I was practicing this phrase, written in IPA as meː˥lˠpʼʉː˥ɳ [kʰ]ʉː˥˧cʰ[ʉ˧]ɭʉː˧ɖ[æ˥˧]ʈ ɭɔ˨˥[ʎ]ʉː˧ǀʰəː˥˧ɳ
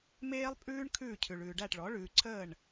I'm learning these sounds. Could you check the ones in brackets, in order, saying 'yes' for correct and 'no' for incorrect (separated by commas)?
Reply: yes, yes, yes, no